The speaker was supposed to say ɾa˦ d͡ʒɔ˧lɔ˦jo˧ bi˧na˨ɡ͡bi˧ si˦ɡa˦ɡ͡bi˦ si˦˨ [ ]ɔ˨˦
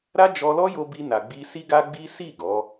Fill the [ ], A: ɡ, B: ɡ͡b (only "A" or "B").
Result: A